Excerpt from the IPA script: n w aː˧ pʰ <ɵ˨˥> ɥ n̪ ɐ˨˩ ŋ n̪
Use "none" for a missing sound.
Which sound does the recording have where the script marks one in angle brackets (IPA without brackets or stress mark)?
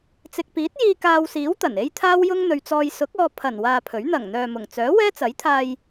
ɵ˨˥